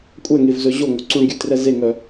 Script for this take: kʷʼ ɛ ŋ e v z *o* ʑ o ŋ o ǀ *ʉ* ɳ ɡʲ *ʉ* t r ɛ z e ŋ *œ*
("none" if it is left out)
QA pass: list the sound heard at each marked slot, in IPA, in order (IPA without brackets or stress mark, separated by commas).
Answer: ɵ, u, ʉ, œ